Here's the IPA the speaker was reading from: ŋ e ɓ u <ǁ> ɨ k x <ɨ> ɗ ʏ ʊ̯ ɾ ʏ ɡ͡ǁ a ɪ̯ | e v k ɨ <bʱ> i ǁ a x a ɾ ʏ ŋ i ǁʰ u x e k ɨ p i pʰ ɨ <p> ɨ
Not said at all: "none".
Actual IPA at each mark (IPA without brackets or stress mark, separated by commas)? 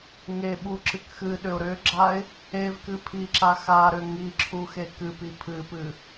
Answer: ǁ, ɨ, pʰ, p